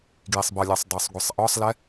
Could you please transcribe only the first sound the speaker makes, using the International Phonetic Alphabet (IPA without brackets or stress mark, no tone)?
ɡ